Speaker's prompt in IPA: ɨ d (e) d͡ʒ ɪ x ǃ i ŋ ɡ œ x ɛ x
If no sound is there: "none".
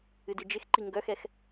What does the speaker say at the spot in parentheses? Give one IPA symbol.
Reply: ɨ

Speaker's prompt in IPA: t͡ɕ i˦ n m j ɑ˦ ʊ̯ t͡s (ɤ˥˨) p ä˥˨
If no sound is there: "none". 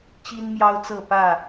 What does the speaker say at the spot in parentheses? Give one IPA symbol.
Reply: ɤ˥˨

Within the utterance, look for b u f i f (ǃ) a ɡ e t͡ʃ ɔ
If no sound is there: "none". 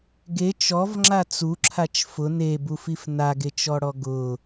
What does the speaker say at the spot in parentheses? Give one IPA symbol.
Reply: n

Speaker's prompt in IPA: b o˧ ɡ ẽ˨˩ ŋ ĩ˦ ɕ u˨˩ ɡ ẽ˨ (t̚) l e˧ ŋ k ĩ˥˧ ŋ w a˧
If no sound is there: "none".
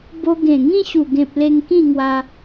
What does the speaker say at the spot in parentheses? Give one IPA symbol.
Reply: p̚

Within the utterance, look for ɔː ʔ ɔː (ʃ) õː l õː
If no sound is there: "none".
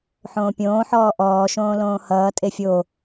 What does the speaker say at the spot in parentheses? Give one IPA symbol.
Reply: ʃ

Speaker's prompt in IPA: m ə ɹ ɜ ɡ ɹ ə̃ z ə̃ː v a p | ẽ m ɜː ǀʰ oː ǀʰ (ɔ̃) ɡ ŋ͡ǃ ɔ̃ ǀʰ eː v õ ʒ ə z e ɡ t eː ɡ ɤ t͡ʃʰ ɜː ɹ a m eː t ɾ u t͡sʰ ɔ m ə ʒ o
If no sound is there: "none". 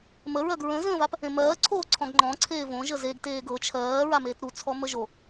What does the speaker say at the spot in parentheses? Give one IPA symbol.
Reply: ɔ̃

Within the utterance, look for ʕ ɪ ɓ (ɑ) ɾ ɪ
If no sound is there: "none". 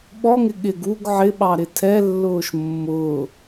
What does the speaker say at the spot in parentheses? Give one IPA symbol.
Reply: ɑ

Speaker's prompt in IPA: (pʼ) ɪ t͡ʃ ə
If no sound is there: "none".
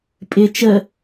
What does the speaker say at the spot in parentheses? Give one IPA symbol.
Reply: pʼ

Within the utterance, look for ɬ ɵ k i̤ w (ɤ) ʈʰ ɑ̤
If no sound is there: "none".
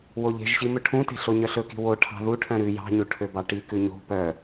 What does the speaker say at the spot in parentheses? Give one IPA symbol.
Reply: o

